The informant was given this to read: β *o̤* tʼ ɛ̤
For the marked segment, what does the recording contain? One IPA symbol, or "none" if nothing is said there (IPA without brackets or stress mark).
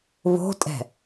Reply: o̤